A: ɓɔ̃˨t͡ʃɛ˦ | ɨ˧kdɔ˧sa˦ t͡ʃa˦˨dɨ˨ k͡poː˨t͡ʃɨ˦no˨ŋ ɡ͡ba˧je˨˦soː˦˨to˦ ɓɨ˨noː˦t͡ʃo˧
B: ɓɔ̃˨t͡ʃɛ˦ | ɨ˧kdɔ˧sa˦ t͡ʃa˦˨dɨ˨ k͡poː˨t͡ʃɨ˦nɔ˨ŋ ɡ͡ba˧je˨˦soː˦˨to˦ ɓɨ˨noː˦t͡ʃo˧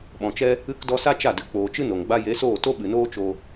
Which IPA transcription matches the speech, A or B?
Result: A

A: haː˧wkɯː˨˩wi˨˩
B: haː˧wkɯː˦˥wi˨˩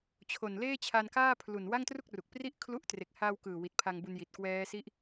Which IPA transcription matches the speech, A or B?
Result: A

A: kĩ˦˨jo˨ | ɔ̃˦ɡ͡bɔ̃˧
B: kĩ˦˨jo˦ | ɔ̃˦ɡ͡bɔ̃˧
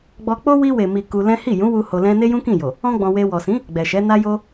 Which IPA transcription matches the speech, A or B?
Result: A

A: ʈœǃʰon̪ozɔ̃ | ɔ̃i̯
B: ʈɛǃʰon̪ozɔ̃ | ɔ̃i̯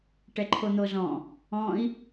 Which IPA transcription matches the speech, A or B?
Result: B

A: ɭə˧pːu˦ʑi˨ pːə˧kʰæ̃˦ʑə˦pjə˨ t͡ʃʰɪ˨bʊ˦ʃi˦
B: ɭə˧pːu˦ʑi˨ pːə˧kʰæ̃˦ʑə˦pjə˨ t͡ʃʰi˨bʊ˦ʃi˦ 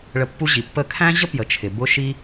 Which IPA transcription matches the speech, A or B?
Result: A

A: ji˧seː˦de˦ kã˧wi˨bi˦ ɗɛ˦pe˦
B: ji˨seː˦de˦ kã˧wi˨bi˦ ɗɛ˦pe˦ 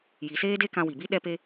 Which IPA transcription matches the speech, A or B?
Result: B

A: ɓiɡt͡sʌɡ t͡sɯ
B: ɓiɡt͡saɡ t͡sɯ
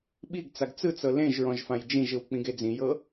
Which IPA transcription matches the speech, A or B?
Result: B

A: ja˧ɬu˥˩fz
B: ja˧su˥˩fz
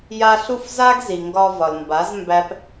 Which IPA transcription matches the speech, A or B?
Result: A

